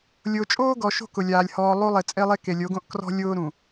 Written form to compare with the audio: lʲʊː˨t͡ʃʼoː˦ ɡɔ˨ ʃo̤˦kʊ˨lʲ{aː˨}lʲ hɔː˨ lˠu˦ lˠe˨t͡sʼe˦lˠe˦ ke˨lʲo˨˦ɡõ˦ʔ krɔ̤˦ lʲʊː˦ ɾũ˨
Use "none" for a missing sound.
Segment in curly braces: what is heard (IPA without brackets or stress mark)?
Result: aː˨